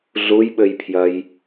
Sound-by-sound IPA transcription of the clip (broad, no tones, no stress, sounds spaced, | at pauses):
ɮ u j ɓ ɘ j pʰ j ɐ j